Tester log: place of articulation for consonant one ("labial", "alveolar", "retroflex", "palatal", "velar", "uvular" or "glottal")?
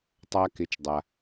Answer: alveolar